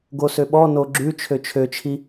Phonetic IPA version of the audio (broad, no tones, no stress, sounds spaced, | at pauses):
ɡ o s ø ɓ ɔ n o ɡ͡ǁ ʉ t͡ʃʰ ø t͡ʃʰ ø t͡ʃʰ i